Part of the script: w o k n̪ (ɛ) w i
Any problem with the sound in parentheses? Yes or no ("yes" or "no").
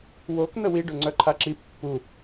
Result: yes